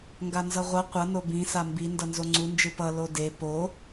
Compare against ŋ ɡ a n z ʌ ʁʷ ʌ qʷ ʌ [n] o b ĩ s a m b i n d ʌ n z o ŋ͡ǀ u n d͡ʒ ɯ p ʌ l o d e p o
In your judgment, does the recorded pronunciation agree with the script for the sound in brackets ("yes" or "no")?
yes